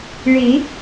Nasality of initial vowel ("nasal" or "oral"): oral